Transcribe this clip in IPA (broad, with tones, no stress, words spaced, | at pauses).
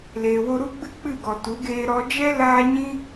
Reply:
leː˨wo˧ɾu˦ ɡ͡bɨ˦k͡pɨ˦˨ɡɔ˨tu˨˦ ɡeː˧ɾɔ˧ d͡ʒɛ˦laː˧ ɲĩ˦